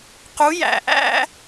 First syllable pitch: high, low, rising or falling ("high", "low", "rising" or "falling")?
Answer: rising